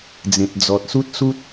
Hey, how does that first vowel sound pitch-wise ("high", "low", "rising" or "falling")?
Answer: low